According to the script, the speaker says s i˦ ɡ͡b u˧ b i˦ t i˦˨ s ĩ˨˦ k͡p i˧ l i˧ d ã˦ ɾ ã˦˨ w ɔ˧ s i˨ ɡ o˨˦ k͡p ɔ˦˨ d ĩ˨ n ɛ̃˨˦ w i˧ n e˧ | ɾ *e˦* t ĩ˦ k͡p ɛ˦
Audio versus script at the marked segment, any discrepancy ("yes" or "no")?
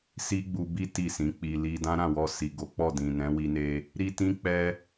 yes